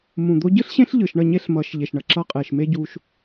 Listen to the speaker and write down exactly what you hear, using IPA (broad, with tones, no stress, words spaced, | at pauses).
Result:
mũ˨d̪o˦ ɟɯ˦ɬɕẽ˦ɬ ʎɯ˨ʃɳʌ˦˨ɲe˦ɬmʌː˨˦ʃ ʎe˨ʃɳʌ˨ǁʌː˦ qʼeː˨ʃme˦ ɟu˦ʃ